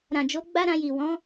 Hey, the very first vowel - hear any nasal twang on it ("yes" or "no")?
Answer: yes